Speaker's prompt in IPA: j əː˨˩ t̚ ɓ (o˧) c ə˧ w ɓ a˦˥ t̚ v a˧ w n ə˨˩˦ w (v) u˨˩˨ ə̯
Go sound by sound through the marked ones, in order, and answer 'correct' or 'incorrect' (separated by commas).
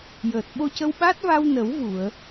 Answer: correct, correct